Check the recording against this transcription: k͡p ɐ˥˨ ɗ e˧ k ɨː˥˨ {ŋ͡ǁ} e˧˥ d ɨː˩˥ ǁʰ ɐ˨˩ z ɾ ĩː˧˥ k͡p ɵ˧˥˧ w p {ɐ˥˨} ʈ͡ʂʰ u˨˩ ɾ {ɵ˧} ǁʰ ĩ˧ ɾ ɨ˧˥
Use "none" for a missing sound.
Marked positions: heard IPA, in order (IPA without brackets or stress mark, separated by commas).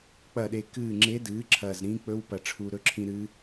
ŋ͡ǁ, ɐ˨˩, ɵ˧˥